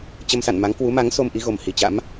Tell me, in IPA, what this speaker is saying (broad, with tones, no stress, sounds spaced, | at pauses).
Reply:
t͡ɕ ə˧ m s a̰˧˨ n m a˨˦ ŋ k w u˨˦ m a˨˦ ŋ s o˧ m ʔ i˨˦ ɣ o˨˩ m h i˨˩ t͡ɕ a̰˧˥ m